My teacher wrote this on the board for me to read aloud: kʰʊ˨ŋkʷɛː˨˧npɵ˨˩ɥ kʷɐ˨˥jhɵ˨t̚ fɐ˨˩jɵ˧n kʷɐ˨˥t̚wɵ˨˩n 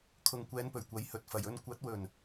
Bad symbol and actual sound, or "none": none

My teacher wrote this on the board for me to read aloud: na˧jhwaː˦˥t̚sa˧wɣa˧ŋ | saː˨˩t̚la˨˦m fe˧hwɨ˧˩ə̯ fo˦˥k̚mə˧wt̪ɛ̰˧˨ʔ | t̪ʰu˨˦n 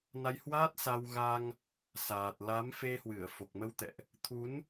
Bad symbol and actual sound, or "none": o˦˥ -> o˨˩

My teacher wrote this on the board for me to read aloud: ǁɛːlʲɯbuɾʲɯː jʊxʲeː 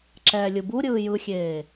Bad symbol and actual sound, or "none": ʊ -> ɯ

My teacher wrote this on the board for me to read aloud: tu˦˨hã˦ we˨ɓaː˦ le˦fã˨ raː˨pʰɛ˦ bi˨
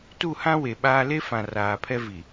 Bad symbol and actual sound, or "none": b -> v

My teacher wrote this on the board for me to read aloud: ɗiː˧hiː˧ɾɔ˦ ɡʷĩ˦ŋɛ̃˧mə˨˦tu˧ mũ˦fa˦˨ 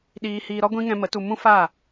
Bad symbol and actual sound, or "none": none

